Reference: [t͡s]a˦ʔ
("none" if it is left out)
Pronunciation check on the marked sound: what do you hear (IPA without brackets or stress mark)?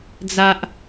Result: d͡z